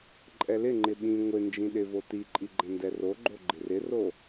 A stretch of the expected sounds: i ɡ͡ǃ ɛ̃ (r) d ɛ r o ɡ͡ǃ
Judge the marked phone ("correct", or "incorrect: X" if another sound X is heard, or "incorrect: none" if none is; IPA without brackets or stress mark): incorrect: n